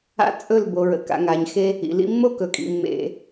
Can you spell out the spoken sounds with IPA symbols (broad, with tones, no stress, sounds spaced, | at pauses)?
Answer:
a̰˦ t͡sʼ ɵ˦˨ l b o˨ ɹ ə̰˨ k a̰˨ ŋ a˨ ɲ x e˦ | ḭ˨ l ḭ˦ mː o˦ k ɵ˨ kʼ ḭ˨ mː ḛ˨